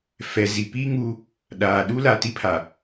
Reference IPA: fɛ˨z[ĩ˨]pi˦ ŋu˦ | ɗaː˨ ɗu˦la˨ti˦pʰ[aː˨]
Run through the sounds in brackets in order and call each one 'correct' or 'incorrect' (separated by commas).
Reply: incorrect, incorrect